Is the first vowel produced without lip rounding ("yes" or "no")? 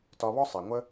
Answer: no